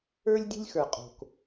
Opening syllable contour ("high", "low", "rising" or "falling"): high